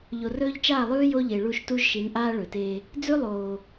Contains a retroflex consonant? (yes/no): yes